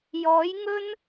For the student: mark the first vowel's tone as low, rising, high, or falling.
rising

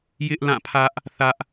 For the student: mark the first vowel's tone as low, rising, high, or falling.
high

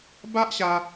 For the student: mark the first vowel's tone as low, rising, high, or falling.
high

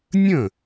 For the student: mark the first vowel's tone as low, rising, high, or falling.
falling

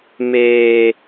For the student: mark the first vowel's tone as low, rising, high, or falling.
high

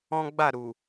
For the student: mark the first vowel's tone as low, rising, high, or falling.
high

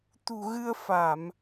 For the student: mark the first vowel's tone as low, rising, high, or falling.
low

